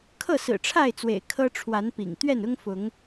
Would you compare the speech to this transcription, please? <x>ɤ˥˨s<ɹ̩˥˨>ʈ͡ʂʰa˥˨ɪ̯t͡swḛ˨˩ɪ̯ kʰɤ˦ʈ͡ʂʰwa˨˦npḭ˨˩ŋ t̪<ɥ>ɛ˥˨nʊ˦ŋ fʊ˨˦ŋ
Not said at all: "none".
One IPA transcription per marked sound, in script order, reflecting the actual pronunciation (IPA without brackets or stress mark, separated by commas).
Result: kʰ, ɹ̩˨˩, ɥ